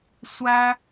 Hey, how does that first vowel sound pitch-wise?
high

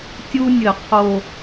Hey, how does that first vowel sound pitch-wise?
high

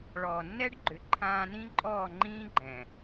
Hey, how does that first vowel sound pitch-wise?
low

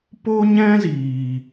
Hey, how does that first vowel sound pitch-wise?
high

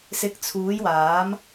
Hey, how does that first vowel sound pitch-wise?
rising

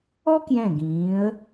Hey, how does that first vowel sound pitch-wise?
high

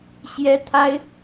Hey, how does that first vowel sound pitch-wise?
high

